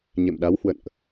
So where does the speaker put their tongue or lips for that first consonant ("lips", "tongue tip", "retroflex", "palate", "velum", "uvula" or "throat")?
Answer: palate